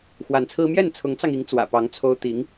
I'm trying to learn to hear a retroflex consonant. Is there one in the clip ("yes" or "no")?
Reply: no